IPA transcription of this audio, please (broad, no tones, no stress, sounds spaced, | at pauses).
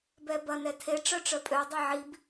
b ɛ b ɐ n ɛ tʰ e ʈ͡ʂ œ ʈ͡ʂ œ pʼ ø dˤ e ʕ i b